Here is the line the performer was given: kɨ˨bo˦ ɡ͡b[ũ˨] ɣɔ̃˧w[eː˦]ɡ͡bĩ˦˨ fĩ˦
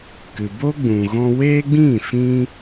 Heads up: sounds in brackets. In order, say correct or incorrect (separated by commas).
correct, correct